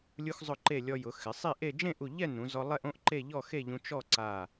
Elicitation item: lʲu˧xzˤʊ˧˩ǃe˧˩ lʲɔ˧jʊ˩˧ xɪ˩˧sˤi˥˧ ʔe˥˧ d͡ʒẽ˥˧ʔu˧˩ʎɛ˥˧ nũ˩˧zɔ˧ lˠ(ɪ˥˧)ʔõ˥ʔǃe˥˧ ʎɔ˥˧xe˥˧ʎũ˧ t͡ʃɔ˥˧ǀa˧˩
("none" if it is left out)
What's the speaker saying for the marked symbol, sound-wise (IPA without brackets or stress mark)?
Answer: ɛ˥˧